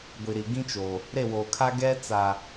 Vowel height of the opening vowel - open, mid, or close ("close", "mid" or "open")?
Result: close